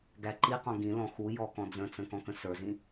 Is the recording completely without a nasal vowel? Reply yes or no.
no